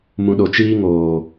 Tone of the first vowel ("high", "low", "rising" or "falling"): low